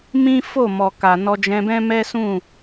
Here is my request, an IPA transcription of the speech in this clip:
mĩ˦fo˦˨ mɔ˨ka˨ nɔ˧d͡ʒɛ̃˧bɛ̃˦mɛ˦ sũ˦˨

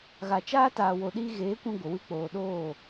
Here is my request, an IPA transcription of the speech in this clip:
ɣa˨t͡ʃaː˦ taː˨wo˨ɗiː˧ɣeː˨˦ kʷĩ˦ɡʷə˨ wɨ˧k͡poː˨ ɗoː˦˨

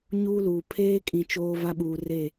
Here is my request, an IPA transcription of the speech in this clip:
ɲuː˦luː˨ pʰeː˦kʼĩ˨ t͡ʃoː˦va˦ ɓuː˨re˦˨

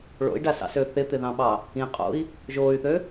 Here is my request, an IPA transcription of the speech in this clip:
ɭo̰i̯ɖasɑ̰sø θɪt̪ɪðɑ̃ɓɑ | ĩqʼo̰i̯ | ʒoːy̯θø

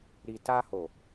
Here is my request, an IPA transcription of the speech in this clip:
ɾi˨ta˧ ho˨

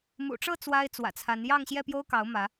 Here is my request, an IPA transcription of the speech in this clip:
mṵ˨˩ʈ͡ʂɤ˥˨ t͡swa˦ɪ̯t͡swä̰˨˩t͡sʰa˨˦n jɑ˥˨ŋɕjɛ˥˨pjo˦ʊ̯kɑ˨˦ʊ̯ mä˨˦

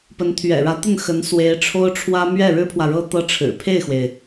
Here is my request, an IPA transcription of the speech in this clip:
pə˧˥nt̪ʰɥɛ̰˨˩ɻä˧˥t̪ə˥˩n xə˧˥nswe˧˥ɪ̯ʈ͡ʂʰo˥ʊ̯ʈ͡ʂʰwä˥ mɥɛ˥˩ɻɻ̩˥pʰwä˨ ɻɤ˥ t̪ɤ˥ʈ͡ʂʰɻ̩˨˩ pʰe˥˩ɪ̯xwe˩ɪ̯

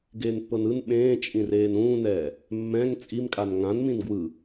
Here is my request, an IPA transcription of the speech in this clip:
ɡeːnpːɤnɯn ɓẽː t͡ʃʼĩreːnũːnɛː | mːɛ̃ŋ t͡sʼimkʼan ŋãn mĩnɡwɯ

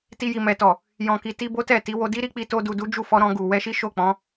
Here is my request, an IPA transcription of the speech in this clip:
ti˧ji˨ mɛ˨tɔ˨ | jɔ̃˨ki˨ti˧ bo˦tɛ˦˨ti˨˦ wo˧di˦ɾi˦k͡pi˧ to˧du˨du˨˦d͡ʒu˦˨ fɔ˧ɾɔ̃˧ ɡu˨ wɛ˧ʃi˦ʃo˦˨k͡pɔ̃˨˦

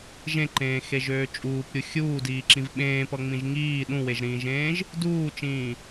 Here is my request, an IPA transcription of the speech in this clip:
ʒẽǃẽːxeʒøː t͡ʃʼuːpɾʲu xʲuːdiːǁĩv ɓẽːpʌŋ͡mĩʒ ŋiː ɗũweʒɾĩːʒẽːʒ | duːt͡ʃĩː

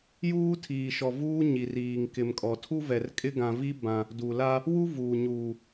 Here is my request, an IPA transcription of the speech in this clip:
juː˦ tʰiː˨ʃɔ˨ vuː˦ɲi˨riː˨ŋ kɪ˨mkʼɔ˨tʰu˦vɛ˨r kʼɪ˦ɡã˨vi˦ bã˨ | du˨la˦ | wu˦ vuː˨ɲuː˨

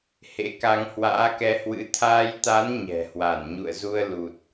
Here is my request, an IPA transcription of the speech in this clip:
hḛ˧˥ka˧ŋ hwa̰ː˧˥kɛ˧hwɨ̰˧˥ t̪ʰaː˧jt̪a˨˦n ɲɛ̤˨˩hwa˧˩n ɲṵ˧˨ə̯zu˧ə̯ lu˨˩t̚

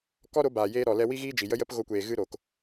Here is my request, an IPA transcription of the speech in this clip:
kɔ˦ɾo˨˦baː˨jeː˧ ɾɔ˨lɛ˧ wi˦ɣiː˦d͡ʒi˨ jə˦jə˦p ɣo˧kʷeː˨ ɣɨ˦ɾo˨k

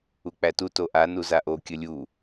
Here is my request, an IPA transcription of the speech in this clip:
uk͡pætu toʔa nuzaʔo kʲəlʲu

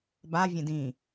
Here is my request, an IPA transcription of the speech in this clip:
bavʲẽ dĩ

